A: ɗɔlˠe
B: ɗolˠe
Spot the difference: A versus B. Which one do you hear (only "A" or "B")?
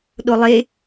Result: B